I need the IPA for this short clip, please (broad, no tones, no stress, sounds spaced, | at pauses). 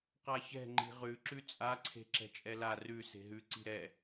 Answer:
q a ç ɛ̤ ŋ͡ǃ i̤ ʁ ʉ ǁ ʉ t͡sʼ a ǀʰ e̤ ǁ ɛ̤ t͡ʃʼ ɛ l a r ʉ s e̤ ɦ ʉ ǀ i̤ ɾ ɛ